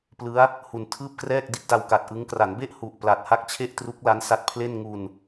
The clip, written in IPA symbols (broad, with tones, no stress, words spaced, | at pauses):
plɯ˦˥a̯ | hu˨˩n tʰɯː˥˩p̚krɛː˥˩k̚ di˦˥t̚da˧wka˨˩t̚ ʔɯ˦˥ŋ kra˩˦nbe˥˩ʔ hu˨˩ʔpla˨˩t̚ ha˥˩k̚t͡ɕʰe˥˩ʔ tru˦˥k̚la˦˥nsa˦˥t̚pʰle˥˩n ŋu˧n